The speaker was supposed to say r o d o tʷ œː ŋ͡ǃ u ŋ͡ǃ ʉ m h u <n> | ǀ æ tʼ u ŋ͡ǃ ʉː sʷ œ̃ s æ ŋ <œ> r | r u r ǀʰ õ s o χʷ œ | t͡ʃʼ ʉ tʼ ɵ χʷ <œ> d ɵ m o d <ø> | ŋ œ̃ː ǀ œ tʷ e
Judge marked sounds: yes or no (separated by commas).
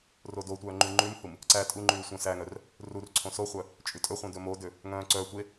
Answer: no, yes, no, yes